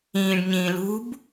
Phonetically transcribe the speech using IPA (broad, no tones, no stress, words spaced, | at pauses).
ĩːɖɲĩː lṳb